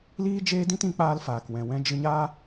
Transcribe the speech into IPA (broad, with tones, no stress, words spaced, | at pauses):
liː˦ d͡ʒeː˦dĩ˦tĩ˨˦k͡paː˧l faː˨kwɛ̃˨wɛ̃˧ d͡ʒɨ˧ɲaː˦